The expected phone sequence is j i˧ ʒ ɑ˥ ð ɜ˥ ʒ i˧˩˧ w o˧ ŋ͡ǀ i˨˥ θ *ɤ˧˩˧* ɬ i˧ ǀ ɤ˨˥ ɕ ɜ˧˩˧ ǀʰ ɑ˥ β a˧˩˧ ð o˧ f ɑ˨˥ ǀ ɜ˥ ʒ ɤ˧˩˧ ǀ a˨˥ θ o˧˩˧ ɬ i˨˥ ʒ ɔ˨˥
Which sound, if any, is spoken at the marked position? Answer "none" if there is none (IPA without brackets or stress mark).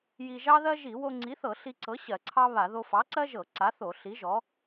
ɤ˧˩˧